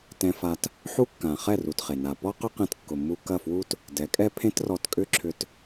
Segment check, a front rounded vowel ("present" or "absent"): present